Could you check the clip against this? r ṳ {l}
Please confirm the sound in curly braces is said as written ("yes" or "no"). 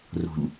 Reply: no